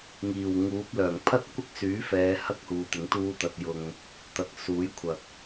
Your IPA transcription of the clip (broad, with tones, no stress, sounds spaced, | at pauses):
ŋ iː˨˩ w ŋ uː˨˥ p̚ l œː˨˩ ŋ pʰ ɐ˥ t̚ kʷ ɪ˥ k̚ s yː˨˥ f ɛː˨˧ h ɐ˥ k̚ h uː˨ t̪ ɪ˨˥ ŋ t̪ uː˥ t̪ ɐ˧ t̚ j ʊ˧ ŋ | t̪ ɐ˨˥ k̚ s uː˨˥ j kʷʰ ɐ˨ k̚